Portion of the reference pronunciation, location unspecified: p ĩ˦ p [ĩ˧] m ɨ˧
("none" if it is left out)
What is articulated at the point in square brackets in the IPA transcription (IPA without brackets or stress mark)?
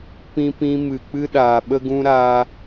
ĩ˦